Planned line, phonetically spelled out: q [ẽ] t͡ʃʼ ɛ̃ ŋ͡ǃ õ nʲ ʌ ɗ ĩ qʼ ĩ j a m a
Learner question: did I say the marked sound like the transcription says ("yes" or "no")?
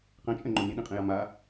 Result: no